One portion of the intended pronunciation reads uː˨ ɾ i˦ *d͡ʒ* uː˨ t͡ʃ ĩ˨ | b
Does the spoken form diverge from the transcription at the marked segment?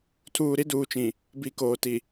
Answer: yes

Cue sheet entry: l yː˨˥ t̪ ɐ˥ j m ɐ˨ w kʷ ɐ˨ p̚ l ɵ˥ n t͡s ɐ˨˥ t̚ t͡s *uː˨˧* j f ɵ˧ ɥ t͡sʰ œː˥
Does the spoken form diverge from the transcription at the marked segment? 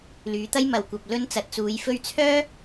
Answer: no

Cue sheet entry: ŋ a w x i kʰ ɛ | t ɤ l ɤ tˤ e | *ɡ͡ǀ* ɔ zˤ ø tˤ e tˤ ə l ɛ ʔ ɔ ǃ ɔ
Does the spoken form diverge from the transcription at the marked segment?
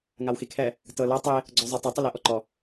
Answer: no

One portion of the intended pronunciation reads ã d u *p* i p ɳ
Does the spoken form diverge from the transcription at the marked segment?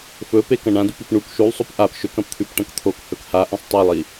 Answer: no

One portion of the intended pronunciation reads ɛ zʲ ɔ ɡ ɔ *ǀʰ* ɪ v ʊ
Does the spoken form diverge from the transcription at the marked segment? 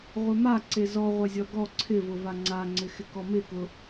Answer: no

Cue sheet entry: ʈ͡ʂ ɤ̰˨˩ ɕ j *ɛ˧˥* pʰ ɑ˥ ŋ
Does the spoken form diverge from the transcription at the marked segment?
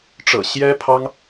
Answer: yes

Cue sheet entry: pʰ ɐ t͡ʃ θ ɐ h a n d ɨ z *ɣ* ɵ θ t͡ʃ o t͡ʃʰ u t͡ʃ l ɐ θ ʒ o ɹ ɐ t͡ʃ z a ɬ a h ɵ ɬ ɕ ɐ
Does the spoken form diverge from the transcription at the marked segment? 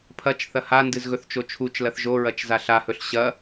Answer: no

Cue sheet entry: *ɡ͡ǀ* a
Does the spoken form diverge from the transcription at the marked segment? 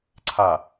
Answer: yes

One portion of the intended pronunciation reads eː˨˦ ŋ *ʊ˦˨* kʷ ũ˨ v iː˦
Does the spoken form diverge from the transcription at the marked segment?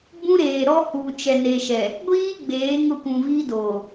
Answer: no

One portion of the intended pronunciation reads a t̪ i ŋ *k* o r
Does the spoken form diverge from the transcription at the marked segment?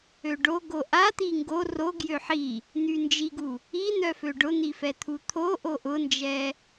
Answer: yes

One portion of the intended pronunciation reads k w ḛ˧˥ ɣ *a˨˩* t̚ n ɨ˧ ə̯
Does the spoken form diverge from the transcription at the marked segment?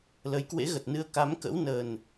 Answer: yes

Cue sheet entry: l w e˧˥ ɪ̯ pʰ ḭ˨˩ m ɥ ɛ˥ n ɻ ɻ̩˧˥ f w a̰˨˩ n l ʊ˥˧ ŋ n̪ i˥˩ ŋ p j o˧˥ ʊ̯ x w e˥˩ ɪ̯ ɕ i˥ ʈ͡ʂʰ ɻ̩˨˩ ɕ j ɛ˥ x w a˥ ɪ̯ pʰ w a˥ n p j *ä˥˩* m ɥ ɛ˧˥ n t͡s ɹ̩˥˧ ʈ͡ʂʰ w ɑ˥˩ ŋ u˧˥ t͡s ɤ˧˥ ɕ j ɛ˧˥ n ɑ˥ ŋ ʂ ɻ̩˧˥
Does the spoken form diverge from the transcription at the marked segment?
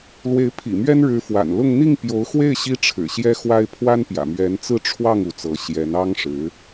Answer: yes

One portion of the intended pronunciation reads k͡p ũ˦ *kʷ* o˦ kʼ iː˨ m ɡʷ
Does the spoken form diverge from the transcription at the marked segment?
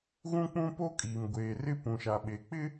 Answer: yes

